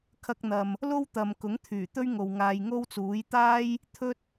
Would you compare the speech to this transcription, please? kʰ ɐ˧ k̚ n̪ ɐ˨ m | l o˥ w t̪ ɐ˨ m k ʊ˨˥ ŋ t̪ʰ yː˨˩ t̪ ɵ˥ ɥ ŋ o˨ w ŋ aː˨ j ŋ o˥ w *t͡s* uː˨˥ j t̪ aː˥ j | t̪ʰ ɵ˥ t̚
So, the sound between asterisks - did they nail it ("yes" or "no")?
yes